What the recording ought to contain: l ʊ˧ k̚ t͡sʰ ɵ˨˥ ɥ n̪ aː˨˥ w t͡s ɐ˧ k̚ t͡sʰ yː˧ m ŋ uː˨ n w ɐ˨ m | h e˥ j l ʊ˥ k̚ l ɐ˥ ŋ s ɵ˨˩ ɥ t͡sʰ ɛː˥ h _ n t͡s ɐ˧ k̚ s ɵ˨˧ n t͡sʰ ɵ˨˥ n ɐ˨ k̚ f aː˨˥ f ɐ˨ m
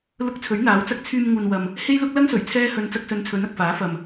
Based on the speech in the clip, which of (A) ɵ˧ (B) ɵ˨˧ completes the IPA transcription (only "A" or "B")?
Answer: A